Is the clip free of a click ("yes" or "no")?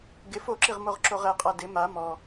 no